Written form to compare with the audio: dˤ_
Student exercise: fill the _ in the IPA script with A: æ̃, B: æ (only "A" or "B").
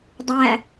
B